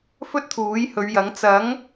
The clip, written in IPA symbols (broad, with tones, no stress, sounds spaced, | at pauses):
f ɵ˥ t̚ t̪ʰ uː˨˥ j h ɵ˨˧ ɥ j ɐ˨˥ ŋ t͡s ɐ˨˥ ŋ